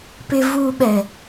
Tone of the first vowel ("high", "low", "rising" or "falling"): low